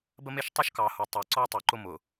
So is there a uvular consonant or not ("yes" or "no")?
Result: no